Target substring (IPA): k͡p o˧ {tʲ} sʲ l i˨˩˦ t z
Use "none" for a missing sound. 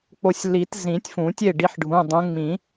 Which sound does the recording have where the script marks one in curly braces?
none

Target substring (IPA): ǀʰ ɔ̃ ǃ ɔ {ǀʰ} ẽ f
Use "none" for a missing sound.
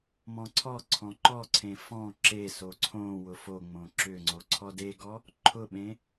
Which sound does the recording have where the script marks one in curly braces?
ǀʰ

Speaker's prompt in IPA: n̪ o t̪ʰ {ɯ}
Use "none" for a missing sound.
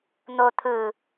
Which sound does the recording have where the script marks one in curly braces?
ɯ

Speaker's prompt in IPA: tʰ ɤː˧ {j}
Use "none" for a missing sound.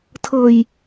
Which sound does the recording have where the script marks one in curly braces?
j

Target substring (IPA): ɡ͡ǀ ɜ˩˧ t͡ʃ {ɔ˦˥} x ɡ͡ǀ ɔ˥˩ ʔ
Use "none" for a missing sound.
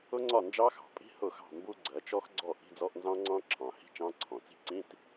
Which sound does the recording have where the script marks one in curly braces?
ɔ˦˥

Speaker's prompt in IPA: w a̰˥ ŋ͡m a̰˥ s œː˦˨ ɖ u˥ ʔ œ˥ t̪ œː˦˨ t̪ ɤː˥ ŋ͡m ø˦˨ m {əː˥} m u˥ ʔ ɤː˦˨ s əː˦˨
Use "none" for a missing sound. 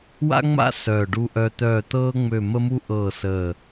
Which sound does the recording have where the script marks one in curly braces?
ə˥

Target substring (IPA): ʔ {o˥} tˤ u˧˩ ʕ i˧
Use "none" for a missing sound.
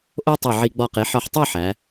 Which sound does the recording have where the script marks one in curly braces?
o˥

